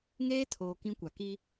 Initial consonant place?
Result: velar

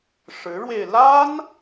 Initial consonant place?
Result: retroflex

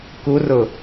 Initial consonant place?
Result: velar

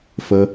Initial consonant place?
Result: labial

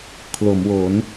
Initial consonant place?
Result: velar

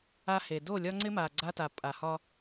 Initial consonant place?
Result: glottal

